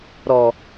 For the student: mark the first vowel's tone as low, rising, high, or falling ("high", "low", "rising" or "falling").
low